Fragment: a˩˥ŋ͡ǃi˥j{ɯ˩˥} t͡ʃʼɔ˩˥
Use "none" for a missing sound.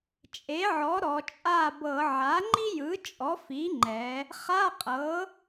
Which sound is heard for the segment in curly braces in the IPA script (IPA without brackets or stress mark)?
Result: ɯ˩˥